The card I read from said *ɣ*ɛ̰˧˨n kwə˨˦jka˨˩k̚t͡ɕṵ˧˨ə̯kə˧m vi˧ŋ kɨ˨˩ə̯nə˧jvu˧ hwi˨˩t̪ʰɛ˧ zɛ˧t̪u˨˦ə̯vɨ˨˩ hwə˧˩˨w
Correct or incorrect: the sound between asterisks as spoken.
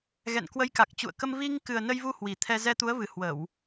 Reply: correct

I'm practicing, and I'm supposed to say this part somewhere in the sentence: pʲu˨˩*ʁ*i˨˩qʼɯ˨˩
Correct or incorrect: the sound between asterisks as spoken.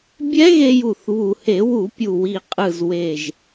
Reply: incorrect: w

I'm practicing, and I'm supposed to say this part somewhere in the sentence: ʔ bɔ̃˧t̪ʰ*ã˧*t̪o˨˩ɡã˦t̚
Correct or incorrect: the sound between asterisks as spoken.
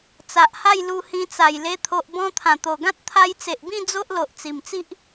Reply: incorrect: ã˨˩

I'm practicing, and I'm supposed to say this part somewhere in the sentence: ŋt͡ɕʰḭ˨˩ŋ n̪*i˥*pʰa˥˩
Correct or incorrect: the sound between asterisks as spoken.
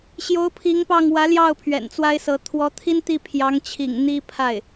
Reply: correct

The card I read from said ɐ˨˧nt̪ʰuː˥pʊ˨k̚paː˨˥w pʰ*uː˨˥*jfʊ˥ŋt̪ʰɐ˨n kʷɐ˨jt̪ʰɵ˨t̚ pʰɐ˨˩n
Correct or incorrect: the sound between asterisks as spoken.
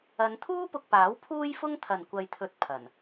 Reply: incorrect: uː˥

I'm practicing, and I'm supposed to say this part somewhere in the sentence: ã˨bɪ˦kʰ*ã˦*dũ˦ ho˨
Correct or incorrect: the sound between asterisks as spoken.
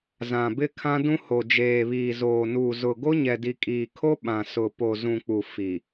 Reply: correct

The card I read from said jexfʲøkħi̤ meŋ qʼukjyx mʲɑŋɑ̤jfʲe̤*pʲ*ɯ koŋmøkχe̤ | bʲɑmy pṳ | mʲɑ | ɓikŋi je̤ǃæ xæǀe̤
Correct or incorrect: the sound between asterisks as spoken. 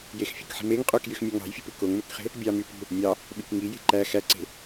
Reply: incorrect: p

